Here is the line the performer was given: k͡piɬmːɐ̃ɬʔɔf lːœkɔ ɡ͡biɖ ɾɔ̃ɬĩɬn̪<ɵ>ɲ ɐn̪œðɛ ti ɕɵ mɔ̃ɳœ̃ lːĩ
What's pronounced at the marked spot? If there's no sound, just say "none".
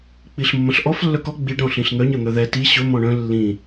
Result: œ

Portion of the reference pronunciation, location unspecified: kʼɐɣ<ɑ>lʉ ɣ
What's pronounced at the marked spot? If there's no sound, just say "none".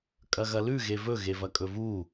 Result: ɐ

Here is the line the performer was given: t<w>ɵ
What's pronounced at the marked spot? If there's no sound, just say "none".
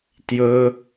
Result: j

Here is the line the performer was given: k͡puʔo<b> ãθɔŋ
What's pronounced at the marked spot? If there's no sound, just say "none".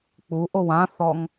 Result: w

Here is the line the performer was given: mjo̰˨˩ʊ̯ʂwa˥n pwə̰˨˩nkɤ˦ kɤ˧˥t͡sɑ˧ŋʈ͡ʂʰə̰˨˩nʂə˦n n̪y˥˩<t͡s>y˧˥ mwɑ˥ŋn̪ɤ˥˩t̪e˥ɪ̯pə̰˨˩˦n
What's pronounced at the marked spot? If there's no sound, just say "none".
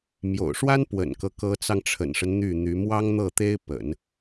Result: n̪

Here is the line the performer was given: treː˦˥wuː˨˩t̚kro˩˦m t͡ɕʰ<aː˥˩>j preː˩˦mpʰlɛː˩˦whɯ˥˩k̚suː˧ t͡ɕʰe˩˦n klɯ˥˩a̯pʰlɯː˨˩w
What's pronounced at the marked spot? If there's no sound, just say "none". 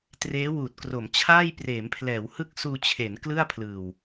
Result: aː˥˩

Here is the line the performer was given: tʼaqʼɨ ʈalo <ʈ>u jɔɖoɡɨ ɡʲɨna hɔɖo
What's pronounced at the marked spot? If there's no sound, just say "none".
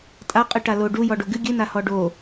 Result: ɖ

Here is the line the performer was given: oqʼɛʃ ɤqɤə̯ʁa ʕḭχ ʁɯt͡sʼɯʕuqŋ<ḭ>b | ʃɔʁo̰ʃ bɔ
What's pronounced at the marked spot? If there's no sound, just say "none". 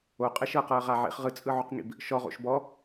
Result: ḭ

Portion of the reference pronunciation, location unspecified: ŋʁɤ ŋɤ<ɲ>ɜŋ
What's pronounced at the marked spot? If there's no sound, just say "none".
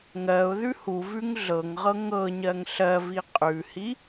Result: ɲ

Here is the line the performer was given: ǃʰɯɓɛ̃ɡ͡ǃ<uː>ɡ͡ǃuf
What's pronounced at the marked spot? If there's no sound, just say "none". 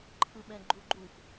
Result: u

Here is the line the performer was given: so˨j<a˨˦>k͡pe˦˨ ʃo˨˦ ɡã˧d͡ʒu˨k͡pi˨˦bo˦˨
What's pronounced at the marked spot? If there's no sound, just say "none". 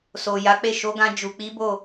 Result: a˨˦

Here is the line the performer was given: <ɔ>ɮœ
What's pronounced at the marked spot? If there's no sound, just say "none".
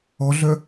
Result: ɔ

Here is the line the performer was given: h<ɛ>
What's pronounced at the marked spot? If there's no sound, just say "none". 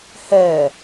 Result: ɛ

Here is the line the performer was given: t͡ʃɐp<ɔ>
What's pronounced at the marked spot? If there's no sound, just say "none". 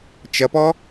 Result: ɔ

